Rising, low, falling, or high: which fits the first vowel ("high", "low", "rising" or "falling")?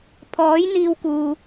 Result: rising